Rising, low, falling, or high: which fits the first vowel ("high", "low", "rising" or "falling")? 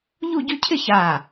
falling